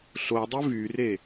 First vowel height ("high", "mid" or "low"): mid